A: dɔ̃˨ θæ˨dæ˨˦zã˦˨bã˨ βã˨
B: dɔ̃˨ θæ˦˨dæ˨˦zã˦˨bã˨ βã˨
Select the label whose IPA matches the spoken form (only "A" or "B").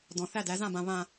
B